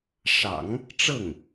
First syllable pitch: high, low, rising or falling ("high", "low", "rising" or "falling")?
low